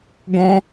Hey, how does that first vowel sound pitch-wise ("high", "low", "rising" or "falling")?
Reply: high